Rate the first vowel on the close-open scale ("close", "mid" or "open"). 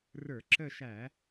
mid